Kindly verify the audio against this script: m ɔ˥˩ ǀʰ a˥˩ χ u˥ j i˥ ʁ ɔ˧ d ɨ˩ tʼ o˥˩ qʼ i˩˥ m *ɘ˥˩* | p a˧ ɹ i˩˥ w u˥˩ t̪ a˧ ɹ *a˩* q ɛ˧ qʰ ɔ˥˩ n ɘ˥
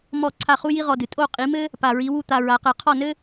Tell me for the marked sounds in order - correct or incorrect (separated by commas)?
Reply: incorrect, incorrect